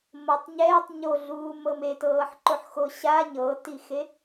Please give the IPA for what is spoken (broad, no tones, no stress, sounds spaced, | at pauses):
m ɤ tˤ ɲ ɛː tˤ ɲ o ɮ uː m ɤ m e t ɤː ħ ǃ o ħ x o ɕ a ɲ ɤː t i x e